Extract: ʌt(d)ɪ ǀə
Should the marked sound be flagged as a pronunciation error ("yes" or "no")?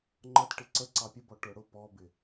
yes